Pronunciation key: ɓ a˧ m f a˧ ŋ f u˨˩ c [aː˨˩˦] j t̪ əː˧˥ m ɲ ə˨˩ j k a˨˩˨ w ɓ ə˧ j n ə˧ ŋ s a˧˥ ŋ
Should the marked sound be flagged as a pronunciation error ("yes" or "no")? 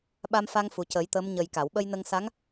yes